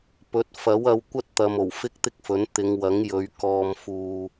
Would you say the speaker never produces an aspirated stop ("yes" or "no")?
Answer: yes